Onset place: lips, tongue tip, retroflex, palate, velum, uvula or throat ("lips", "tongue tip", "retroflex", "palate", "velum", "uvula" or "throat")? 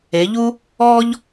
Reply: palate